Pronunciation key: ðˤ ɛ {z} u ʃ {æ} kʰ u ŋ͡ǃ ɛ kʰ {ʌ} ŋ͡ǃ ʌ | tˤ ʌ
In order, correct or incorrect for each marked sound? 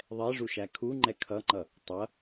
incorrect, correct, correct

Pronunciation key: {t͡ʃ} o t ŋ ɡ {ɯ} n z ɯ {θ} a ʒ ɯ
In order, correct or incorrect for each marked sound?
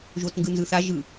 incorrect, correct, correct

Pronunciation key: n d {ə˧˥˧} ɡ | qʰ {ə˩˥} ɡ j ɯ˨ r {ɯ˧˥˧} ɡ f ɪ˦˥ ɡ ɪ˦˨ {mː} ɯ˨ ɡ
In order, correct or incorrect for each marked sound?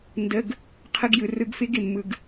correct, incorrect, incorrect, correct

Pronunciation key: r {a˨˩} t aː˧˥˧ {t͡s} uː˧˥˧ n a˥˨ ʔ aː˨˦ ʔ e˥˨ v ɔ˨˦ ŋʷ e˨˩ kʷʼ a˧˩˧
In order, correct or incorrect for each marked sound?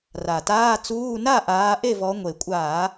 correct, correct

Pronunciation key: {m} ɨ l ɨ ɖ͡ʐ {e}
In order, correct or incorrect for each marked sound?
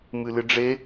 correct, correct

